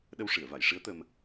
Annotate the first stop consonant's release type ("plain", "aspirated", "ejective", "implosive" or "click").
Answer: implosive